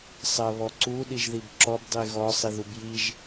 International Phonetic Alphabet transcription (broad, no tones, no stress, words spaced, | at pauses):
sˤɜβɔǀu ɗiʒðibǁɔb dˤiɣɔ sˤiðubjiʒ